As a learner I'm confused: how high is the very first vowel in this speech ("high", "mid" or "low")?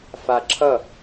low